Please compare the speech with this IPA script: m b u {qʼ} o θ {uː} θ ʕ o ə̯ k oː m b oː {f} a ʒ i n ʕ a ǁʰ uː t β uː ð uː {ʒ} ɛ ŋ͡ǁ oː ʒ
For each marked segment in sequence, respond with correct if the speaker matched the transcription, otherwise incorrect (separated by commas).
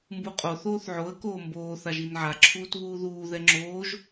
correct, incorrect, incorrect, incorrect